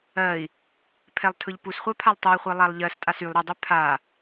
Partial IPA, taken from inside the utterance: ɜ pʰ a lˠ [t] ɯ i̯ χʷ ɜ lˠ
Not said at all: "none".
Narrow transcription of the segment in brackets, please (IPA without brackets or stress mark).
tˤ